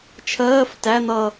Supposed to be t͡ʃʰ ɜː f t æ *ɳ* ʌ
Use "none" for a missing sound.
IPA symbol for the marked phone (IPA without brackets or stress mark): n̪